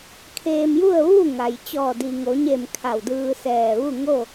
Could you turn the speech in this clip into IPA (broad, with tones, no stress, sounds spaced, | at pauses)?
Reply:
kʰ eː˧ m j u˥˨ ə̯ ʋ u˥˨ ŋ a˩ j t͡ɕ ɔː˧˩ d i˩ ŋ o˩˧ ɲ e˧˩ m kʰ a˧˩ w d ɯː˧ s ɛː˧˩ ʋ u˥˨ ŋ o˥˨